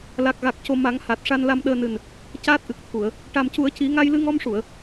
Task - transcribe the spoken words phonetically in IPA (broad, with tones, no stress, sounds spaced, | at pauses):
l a˨˩ k̚ ɣ a˨˩ k̚ c o˨˩ m a˨˩˦ ŋ h a˨˩ t̚ ʂ a˧ n l a˧ m ɗ əː˧ n ɨ˨˩ n | c aː˦˥ t̚ ʔ ɨ˨˩ k̚ t̪ʰ u˨˩˨ ə̯ | ʈ a˨˩ m c u˨˩˦ ə̯ c i˨˩˦ ŋ a˧ j l ɨ˧ ŋ ɔ˧ m ʂ u˨˩˨ ə̯